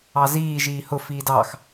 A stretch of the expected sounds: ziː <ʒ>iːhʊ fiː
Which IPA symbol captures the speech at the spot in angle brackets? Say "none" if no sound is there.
ʒ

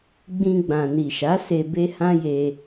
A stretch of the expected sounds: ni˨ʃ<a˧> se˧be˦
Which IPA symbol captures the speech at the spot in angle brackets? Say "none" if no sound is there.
a˨˦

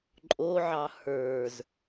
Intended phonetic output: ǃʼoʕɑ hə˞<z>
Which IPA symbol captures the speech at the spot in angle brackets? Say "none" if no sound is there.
z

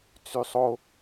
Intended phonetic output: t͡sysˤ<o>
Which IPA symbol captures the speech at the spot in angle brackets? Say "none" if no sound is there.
o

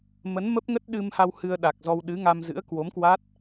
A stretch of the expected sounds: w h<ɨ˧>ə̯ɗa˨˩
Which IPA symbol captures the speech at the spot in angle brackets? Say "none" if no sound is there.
ɨ˧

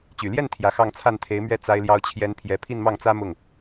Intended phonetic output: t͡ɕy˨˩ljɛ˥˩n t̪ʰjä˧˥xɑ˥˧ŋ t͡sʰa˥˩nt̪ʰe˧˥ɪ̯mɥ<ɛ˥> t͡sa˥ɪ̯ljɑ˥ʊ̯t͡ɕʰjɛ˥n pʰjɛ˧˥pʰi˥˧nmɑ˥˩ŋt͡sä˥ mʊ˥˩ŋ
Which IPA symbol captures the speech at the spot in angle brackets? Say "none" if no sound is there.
ɛ˥˩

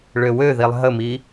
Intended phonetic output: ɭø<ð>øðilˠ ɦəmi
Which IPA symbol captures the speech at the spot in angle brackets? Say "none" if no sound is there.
w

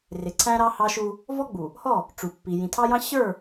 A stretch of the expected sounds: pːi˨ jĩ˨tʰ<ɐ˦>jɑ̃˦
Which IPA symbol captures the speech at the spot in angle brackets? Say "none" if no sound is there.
ɑ˦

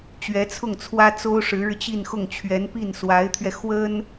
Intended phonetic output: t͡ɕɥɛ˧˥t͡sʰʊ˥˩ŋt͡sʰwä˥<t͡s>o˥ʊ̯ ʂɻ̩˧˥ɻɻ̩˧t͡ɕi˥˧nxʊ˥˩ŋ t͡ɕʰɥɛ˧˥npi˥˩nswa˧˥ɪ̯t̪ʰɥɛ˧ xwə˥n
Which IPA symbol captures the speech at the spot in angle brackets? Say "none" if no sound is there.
t͡s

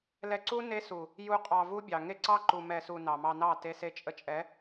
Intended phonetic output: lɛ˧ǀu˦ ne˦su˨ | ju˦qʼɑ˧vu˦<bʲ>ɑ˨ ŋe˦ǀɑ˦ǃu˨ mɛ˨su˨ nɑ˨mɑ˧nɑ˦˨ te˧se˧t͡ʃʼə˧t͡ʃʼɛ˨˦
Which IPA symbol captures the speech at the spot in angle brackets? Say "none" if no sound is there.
bʲ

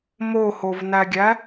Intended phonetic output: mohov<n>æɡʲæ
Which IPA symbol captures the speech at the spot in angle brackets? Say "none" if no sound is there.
n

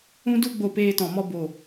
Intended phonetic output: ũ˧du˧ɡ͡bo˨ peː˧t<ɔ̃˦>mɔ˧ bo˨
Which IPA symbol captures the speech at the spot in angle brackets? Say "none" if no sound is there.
ɔ̃˨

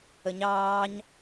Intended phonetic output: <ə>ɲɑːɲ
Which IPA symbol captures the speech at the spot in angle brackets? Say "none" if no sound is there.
ə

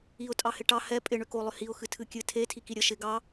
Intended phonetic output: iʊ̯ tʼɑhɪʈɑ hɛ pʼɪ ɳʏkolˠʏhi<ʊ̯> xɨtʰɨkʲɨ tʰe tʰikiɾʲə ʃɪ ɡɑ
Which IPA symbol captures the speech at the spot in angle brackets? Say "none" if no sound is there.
ʊ̯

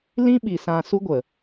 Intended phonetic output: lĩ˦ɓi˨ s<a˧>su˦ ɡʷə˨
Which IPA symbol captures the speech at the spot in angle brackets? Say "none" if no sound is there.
ã˧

